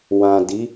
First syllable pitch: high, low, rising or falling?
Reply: low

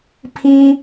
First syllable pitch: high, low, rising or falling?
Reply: high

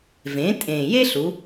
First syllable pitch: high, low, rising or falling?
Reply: rising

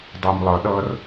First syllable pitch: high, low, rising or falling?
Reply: low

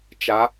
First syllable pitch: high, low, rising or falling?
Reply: rising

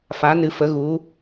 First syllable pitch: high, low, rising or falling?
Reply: rising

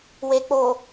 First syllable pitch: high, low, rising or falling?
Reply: low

